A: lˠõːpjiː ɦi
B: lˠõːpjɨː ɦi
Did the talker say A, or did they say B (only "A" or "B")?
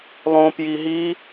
A